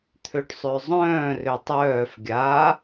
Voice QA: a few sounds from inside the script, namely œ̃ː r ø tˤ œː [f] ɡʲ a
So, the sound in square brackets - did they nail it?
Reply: yes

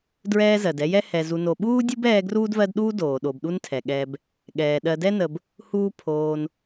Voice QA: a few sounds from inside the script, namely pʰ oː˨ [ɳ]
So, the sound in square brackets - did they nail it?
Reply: no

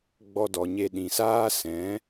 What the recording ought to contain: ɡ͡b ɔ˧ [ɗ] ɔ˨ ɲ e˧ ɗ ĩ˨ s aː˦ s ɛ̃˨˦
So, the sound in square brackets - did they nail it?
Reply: no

